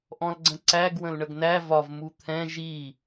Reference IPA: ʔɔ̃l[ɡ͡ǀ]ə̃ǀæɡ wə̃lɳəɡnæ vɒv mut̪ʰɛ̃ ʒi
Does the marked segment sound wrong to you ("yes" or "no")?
no